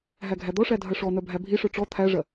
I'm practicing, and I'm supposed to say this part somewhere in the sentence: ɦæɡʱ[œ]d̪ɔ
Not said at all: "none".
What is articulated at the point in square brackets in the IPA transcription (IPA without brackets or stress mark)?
æ